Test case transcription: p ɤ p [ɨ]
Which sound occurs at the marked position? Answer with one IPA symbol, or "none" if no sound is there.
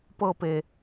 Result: e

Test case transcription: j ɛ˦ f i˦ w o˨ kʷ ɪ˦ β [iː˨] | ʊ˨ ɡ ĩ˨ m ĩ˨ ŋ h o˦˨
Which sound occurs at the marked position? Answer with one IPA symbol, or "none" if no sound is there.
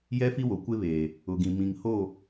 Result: eː˨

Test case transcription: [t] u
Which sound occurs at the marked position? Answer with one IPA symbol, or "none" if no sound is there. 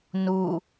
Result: n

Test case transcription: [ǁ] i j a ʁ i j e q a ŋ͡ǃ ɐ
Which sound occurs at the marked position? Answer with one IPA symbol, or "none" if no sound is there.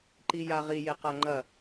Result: ǃ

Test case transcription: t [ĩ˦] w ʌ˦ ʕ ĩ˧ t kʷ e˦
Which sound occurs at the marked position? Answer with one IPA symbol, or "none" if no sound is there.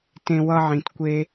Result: ẽ˦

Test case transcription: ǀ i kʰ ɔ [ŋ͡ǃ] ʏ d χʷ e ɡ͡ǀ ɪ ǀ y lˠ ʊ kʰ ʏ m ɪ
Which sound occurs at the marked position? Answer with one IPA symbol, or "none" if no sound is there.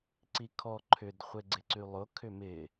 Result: ǃʰ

